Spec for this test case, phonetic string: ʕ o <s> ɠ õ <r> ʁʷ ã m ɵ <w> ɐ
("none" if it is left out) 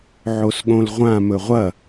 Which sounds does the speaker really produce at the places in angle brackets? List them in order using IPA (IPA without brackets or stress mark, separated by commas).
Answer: s, l, ʁʷ